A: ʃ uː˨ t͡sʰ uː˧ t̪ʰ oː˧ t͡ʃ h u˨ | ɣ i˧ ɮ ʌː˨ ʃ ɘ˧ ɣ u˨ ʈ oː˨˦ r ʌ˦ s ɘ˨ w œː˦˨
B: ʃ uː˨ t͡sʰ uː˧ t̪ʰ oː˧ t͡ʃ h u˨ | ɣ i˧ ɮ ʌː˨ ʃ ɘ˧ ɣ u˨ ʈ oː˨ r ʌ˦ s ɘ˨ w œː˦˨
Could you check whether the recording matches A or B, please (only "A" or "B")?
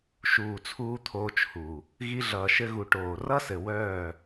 B